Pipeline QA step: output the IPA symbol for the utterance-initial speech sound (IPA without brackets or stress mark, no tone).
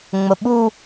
ŋ͡m